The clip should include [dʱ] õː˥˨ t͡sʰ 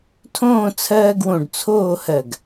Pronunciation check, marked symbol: incorrect: tʰ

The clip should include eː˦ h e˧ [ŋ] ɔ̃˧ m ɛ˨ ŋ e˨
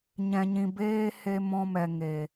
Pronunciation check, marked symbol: incorrect: m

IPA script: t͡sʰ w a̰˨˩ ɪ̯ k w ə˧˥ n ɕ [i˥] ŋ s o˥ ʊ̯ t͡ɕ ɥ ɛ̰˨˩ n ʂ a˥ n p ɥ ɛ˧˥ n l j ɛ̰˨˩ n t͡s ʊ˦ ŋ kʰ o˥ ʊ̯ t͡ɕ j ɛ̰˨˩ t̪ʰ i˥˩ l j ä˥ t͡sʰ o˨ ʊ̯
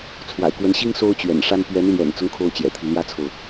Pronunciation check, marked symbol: correct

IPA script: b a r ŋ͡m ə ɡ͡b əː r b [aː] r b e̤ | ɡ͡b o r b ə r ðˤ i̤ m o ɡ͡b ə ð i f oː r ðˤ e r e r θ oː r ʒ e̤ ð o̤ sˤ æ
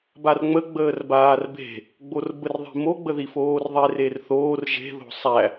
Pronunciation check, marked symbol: correct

